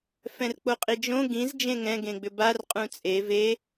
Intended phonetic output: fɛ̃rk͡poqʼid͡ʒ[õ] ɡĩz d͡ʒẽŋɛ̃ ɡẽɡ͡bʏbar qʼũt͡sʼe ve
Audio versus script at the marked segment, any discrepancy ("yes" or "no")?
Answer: no